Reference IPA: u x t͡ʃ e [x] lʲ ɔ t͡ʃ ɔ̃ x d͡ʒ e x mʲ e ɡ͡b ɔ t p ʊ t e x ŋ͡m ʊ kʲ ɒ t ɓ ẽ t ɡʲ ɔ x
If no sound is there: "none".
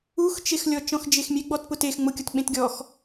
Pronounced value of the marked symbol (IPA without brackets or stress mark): x